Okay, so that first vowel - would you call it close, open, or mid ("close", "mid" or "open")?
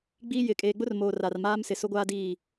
close